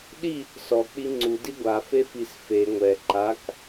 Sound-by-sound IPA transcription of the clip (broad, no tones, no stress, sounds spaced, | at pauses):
ɗ i | s ɔ k͡p i ŋ͡ǀ u d i ɡʷ a f e f i s f e ŋʷ ɛ ǃ a k